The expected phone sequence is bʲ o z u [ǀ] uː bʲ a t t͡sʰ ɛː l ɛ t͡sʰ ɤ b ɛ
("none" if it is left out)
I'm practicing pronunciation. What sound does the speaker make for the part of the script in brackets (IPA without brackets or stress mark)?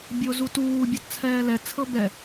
t